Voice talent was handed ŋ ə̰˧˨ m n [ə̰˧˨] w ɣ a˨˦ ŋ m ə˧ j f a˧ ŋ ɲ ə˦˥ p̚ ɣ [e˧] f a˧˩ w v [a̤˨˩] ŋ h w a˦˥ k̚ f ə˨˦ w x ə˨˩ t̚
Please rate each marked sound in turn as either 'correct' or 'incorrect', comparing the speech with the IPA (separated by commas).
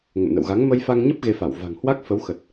correct, correct, correct